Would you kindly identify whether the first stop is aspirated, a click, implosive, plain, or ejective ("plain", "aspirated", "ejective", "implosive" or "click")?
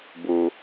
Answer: plain